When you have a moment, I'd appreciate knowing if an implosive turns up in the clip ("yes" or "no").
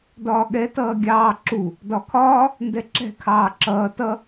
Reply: yes